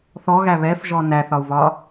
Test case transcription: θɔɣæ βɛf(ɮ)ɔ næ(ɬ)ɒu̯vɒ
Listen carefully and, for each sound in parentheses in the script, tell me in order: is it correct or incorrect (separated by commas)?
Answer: incorrect, incorrect